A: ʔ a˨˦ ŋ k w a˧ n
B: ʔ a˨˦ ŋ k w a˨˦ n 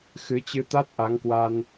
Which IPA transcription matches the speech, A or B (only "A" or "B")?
A